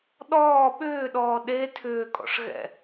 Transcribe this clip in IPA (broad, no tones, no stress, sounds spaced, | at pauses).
ɗ ɔː ɓ ʏː ɗ ɔː ɗ e tʰ ʏː kʼ ɔ̰ ʂ ɣ ɛ̰